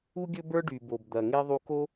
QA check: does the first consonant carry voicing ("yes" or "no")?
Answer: yes